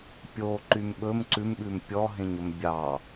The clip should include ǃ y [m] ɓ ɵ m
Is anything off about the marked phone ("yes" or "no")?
no